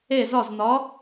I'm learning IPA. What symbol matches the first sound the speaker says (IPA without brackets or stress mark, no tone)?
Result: e